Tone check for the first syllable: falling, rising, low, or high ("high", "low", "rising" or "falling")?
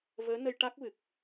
rising